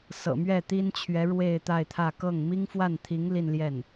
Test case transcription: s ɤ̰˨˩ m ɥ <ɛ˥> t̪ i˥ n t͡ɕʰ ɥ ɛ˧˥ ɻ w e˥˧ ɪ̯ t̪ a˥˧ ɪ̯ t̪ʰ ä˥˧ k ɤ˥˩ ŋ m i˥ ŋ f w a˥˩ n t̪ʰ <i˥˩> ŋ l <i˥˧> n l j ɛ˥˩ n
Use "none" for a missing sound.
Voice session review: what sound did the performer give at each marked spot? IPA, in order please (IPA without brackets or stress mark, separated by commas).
ɛ˥˩, i˧˥, i˥˧